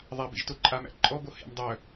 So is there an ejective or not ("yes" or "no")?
yes